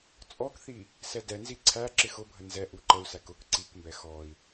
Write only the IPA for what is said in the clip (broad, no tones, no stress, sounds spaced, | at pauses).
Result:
t͡sʼ ɔ k θ i | s ɛ d ɛ n z i ǀʰ æ ǁ ɪ x ʊ bʱ ə n z ɛ ʔ u ǃ ə u̯ s æ k ʊ k ǀ i k m b ɛ x ɔ i̯